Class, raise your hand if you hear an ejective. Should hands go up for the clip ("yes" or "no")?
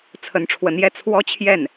no